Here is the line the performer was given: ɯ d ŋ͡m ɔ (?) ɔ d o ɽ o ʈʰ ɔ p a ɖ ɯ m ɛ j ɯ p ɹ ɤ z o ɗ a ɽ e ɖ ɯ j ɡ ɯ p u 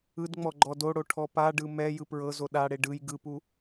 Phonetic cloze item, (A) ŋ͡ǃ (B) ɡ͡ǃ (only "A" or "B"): B